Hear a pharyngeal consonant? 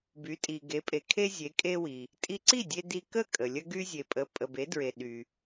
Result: no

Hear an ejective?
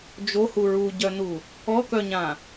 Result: no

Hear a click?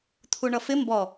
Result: no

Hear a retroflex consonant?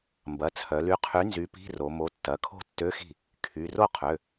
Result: no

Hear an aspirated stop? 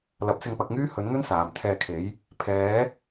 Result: yes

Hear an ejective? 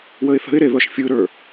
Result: no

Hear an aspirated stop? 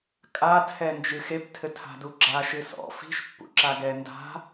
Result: yes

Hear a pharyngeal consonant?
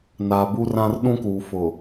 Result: no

